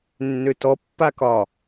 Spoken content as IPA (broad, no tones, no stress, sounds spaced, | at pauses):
nː ø t ɔ pː a k ɒ